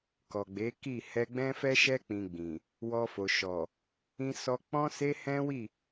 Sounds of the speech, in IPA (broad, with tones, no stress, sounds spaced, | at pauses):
k ɔ˨ ɡ͡b e˨˦ k i˦˨ h ɛ˧ ɡ͡b ɛ̃˦ f ɛ˦ ʃ ɛ˦ k͡p ĩ˧ ɡ͡b ĩ˨ | w ɔ˧ f o˨ ʃ ɔ˨ | ĩ˦ s ɔ˦ k͡p ɔ̃˦ s e˦ h ɛ̃˦ w i˦˨